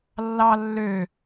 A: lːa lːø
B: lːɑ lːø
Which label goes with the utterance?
B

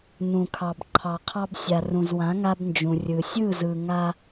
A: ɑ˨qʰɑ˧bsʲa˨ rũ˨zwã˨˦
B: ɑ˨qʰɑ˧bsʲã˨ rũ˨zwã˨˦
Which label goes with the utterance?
A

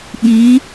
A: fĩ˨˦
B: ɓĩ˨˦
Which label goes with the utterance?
B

